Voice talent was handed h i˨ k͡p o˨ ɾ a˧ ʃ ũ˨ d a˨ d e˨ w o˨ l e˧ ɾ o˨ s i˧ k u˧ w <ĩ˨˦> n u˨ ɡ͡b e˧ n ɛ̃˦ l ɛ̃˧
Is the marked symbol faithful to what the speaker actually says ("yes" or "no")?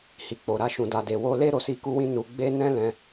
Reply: no